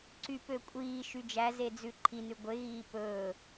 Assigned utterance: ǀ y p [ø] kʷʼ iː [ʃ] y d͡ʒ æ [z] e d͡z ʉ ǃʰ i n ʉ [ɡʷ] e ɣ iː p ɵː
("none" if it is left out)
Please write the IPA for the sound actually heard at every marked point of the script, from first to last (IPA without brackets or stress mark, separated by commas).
ø, ʃ, z, ɡʷ